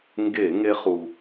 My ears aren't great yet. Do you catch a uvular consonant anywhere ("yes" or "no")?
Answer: yes